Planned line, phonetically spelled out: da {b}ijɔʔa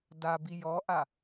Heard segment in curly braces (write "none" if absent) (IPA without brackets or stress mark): b